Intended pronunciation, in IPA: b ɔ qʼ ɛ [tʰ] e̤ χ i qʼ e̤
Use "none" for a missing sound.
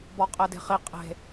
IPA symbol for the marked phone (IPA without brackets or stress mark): d